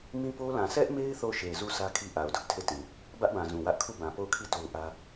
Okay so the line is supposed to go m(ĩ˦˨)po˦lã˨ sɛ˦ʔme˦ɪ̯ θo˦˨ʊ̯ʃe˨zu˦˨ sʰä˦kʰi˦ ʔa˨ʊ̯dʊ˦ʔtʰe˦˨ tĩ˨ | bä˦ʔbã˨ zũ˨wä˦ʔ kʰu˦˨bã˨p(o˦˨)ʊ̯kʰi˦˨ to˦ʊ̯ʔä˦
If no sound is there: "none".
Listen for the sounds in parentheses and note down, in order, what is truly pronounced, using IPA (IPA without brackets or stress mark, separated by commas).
ĩ˦, o˦˨